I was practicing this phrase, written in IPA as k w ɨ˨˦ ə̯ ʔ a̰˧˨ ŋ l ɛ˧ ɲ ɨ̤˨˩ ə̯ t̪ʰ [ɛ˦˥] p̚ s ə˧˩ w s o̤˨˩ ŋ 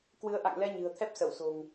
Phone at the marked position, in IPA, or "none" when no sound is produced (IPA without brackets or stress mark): ɛ˦˥